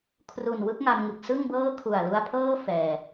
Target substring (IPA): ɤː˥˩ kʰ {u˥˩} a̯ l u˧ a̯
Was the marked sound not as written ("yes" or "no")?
yes